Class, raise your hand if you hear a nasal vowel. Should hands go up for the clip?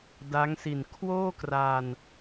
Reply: no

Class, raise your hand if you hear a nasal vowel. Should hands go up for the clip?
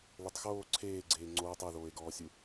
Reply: no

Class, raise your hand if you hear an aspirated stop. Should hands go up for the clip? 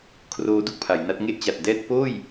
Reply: yes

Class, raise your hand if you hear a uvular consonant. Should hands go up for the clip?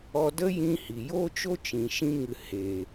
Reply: no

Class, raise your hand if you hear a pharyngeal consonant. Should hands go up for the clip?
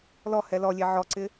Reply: yes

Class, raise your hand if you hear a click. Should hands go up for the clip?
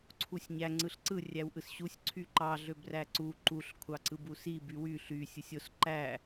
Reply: yes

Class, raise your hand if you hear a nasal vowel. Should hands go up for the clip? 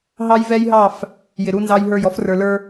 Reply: no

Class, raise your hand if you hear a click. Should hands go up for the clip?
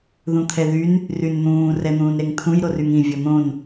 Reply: no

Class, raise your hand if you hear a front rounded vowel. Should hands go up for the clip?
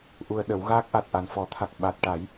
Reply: no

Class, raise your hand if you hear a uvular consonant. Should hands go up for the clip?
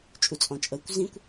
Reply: no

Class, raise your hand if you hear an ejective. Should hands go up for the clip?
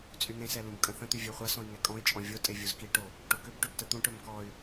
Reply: yes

